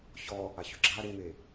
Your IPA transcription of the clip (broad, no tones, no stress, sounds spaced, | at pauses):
ç ɔ | a ç ʏ ɡ͡ǁ a ɾ e n̪ e